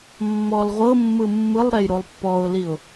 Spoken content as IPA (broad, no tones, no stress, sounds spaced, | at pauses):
mː ɔ l ʁʷ ɤ mː ɯ mː ɯ lˠ ɾ ɛ j ɾ o lˠ pː ɔ ʊ̯ l i ʊ̯